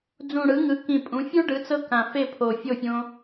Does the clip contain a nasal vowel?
yes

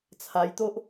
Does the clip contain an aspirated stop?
yes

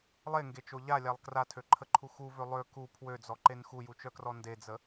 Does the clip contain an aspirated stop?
yes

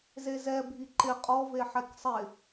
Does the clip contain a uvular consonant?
yes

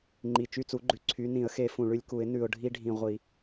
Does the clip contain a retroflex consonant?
yes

